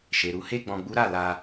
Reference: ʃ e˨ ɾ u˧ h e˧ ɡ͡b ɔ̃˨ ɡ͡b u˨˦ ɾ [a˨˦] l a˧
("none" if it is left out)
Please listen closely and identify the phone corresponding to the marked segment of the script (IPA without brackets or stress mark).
a˦˨